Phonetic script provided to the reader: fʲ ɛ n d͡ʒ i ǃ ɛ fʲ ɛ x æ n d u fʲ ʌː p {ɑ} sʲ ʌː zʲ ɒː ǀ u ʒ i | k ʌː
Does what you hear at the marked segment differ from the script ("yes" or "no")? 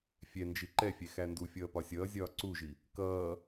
yes